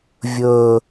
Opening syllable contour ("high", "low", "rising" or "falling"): low